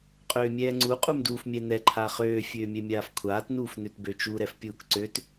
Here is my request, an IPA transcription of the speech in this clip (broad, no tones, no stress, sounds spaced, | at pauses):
qʼ øː mʲ ɛː ŋ͡ǀ u qʼ u m d uː f mʲ ɛ n ɛ ǃʰ a χ øː fʲ øː mʲ ɛ mʲ aː f kʷʰ aː t n uː f n ø t b ø t͡ʃ u ɾ ɛ f pʲ uː k ǀ ø t